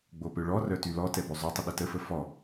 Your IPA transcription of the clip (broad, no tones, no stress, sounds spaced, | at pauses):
ɡ͡b o p ø ɭ ɔ r œ t y l ɔ t ɛ b ø zˤ y tˤ ə ɗ ə t ə f ə f ɔ